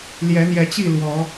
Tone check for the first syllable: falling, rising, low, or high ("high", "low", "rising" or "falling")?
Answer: rising